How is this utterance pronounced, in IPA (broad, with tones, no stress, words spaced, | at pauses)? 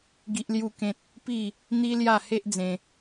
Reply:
ɡi˦ʔlju˥˧kẽ˦t̚ | pi˥˧ | n̪i˦lja˥˧ he˦ʔd͡zẽ˧